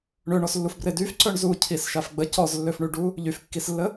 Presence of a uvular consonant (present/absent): absent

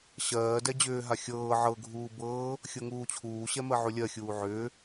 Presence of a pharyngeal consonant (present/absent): present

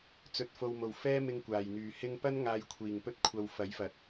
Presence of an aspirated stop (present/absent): present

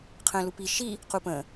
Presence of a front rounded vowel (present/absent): absent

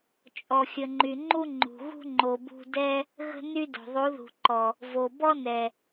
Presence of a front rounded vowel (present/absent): present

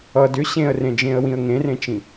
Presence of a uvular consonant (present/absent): absent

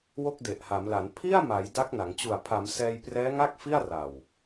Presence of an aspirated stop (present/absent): present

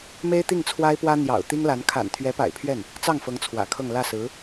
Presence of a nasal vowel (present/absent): absent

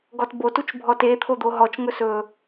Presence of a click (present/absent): absent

